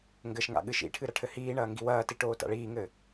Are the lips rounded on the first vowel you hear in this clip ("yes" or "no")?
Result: no